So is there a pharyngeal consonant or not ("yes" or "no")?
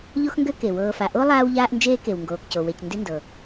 no